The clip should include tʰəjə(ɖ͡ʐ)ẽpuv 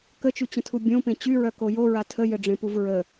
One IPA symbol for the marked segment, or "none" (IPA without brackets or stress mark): ɖ͡ʐ